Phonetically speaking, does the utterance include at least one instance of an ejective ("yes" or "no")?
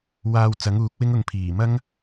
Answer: no